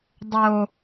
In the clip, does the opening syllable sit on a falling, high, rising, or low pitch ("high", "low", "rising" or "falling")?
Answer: low